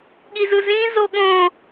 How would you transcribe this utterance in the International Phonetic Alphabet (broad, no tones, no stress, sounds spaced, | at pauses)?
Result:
ɠ i z ɯ z ĩ z o ɠ õ